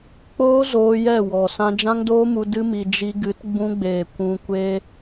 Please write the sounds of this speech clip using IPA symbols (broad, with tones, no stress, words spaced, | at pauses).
k͡poː˦zoː˧ jɛ˦˨wɔ˨ sã˧d͡ʒã˦ŋdoː˦mu˧ dɨ˦mi˧ d͡ʒi˧ɡɨ˨˦t ɡ͡bũ˧ɡ͡beː˨ kʷũ˧kʷe˦